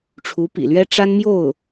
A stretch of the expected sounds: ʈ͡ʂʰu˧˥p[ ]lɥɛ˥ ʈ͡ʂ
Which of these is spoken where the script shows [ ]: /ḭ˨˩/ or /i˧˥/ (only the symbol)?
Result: ḭ˨˩